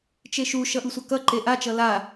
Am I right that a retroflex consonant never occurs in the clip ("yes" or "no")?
yes